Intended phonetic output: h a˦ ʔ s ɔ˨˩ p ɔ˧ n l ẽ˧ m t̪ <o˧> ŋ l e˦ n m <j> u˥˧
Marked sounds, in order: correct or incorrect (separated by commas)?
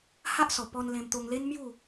correct, correct